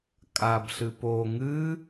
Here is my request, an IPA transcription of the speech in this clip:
kʼ a b ɬ ɨ p o ŋ ɨ

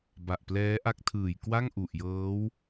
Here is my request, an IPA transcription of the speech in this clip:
b a˨˩ ʔ p l ɛː˦˥ ʔ a˦˥ k̚ tʰ ɯː˨˩ j k w a˥˩ ŋ ʔ u˨˩ ʔ j ɤː˦˥ w

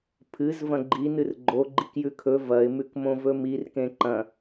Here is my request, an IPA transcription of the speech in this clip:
pʰ ɨ z v ɐ̃ ɡ͡ǃ i n ɨ r ɡ͡ǃ o ɡ͡ǃ i k j ʉ kʰ ɵ v ɐ ɪ̯ m ʉ k m õ v ɵ m i r k ẽ ǃ ɐ̃

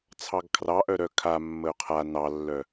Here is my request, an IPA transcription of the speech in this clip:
t͡sʰ ɑ ɡ kʰ r ɑ ʔ œ ɾ œ kʰ a mː ə ʊ̯ qʰ a n ɑ lː œ

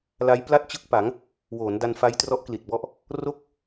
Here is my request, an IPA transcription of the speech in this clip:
l a˦˥ j p l a˥˩ t̚ t͡ɕ ɯ˥˩ k̚ p a˩˦ ŋ | w oː˩˦ n d a˧ n f a˦˥ j t r ɔ˦˥ ʔ k l i˨˩ t̚ b ɔ˦˥ ʔ | r o˥˩ k̚

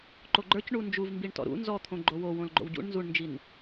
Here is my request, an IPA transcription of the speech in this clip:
ǃ o ɡ͡ǃ ə˞ c ɳ u n d͡ʒ u v m b i ɳ t ɔ̰ ɾ ṵ n z ɔ t̪ʰ õ ɡ͡ǃ o w o w õ l ɡ͡ǃ o̰ w ɟ ṵ ɳ n z u ɳ n d͡ʒ i n

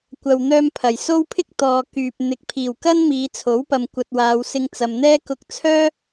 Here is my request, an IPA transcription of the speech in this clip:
kʷ ɐ˨ w n̪ œː˧ m pʰ ɐ˨˩ j s o˥ w pʰ ɪ˥ k̚ t̪ ɔː˨ k yː˨ p̚ n̪ ɪ˨˥ k̚ pʰ iː˨˩ w k ɐ˥ n m iː˨˧ t͡sʰ o˨˥ w p ɐ˨ m kʷ ɐ˧ t̚ w aː˨˧ w s ɪ˧ ŋ t͡s ɐ˨ m n̪ ɛː˥ k ʊ˧ k̚ t͡sʰ œː˥

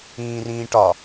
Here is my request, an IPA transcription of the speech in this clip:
ĩː r ĩː ʈ ɒ

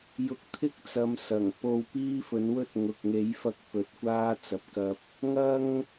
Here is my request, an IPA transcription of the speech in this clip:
j ʊ˧ k̚ t̪ʰ ɪ˥ k̚ t͡s ɐ˨˧ m s ɐ˨˩ ŋ p o˧ w p iː˥ f ɵ˨˥ n w ɵ˥ t̚ ŋ ʊ˨ k̚ ŋ e˨˥ j f ɐ˧ k̚ p ɵ˨˥ t̚ kʷ aː˥ t͡s ɐ˨ p̚ k ɐ˧ p̚ | ŋ ɐ˥ ŋ

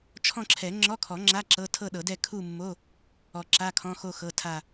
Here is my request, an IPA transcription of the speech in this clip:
t͡ʃʰ ɔ̃˥˧ ǁʰ ɛ˨˩˦ ŋ͡ǁ ɔ˧˥˧ kʰ ɔ˨˩˦ ŋ͡ǁ a˧˥˧ ǁ ɤ˧˥˧ tʰ ɤ˥˧ ɗ ɤ˨˩˦ d ɛ˥˧ kʰ u˥˧ mː o˧˥˧ | ɔ˨˩˦ ǁ a˧˥˧ kʰ ɔ̃˧˥˧ x o˥˧ x ɤ˧˥˧ tʰ a˥˧

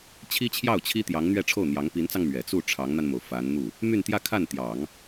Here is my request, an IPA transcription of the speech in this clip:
t͡ɕʰ i˥ t͡ɕʰ j ɑ˥˩ ʊ̯ t͡ɕʰ i˥ t̪ j ɑ˧˥ ŋ n̪ ɥ ɛ˥˧ ʈ͡ʂʰ o˥˩ ʊ̯ n̪ j ɑ˧˥ ŋ p i˧˥ n t͡s ɑ˧ ŋ m ɥ ɛ˨˩ t͡s u˥˩ ʈ͡ʂʰ ɑ˧˥ ŋ n̪ a˧ n m o˩ ʊ̯ f a˧˥ n n̪ u˥˩ | m y˥˧ n t̪ j ä˥˧ kʰ a˥˩ n t̪ j ɑ˨˩˦ ŋ

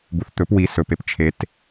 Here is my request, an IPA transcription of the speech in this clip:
b u θ t̪ ɵ p w i s ɵ p e p t͡ʃʰ e t

